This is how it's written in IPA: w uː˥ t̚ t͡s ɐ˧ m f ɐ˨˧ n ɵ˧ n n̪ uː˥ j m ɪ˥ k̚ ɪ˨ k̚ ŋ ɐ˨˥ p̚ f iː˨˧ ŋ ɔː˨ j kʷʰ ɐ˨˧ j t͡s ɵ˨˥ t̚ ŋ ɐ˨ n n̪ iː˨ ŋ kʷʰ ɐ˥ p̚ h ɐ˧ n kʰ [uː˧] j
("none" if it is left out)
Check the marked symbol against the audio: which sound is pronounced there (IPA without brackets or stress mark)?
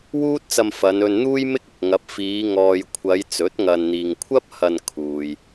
uː˨